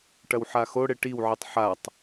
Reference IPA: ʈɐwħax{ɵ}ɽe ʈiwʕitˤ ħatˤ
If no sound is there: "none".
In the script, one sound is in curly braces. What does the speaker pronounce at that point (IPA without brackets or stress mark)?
o